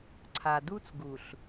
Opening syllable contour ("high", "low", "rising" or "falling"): low